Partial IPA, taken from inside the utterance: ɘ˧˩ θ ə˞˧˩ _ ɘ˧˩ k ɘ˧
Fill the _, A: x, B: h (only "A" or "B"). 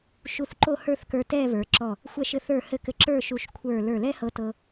B